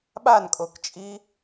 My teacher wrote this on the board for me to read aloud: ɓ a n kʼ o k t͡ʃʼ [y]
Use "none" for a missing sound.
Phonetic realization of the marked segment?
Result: i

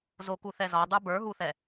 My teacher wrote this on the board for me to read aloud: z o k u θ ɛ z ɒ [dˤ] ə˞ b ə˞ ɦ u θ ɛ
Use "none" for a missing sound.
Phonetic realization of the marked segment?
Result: dˤ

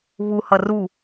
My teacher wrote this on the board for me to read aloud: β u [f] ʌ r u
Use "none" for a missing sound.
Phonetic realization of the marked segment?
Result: h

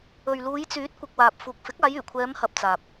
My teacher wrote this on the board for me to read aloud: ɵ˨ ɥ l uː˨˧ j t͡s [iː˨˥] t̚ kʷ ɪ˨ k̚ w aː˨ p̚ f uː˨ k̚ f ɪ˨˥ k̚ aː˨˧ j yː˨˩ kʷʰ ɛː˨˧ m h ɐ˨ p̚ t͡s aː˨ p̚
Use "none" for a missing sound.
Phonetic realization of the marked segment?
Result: yː˨˥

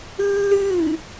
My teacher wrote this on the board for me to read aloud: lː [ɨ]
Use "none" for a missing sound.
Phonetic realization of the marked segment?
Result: ɨ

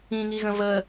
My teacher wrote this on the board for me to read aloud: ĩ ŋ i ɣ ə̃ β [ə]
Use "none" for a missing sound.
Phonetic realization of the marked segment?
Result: ə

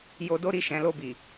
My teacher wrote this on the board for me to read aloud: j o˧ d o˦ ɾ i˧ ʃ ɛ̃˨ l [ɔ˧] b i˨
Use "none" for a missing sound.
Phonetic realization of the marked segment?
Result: o˧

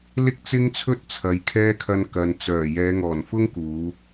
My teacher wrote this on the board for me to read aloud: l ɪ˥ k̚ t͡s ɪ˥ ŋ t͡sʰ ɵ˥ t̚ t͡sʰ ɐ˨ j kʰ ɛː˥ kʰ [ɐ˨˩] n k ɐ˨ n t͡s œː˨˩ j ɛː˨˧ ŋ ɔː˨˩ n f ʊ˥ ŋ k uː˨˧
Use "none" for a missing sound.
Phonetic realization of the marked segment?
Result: ɐ˧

